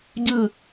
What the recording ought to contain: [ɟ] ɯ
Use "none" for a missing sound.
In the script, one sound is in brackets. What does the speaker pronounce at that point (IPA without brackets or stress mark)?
ɟ